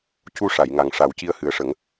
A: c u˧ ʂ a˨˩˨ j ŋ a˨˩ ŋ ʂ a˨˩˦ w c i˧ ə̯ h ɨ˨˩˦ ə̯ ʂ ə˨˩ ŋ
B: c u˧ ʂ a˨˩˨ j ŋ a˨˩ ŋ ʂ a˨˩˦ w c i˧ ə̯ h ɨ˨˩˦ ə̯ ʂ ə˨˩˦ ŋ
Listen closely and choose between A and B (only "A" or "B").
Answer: B